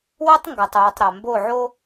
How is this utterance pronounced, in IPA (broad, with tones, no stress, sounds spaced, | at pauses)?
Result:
w o˦ tˤ ŋ ɡ ɐ˨ tˤ uː˨ tˤ ɾ a˨ m b o˦˨ ʕ o˦